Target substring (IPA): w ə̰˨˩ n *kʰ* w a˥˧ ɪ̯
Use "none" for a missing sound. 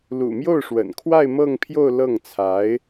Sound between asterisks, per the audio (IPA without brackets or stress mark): kʰ